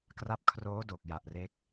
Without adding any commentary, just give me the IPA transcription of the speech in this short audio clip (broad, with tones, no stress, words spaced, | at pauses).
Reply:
kra˦˥p̚ kʰroː˦˥doː˨˩k̚ja˨˩ʔ re˦˥k̚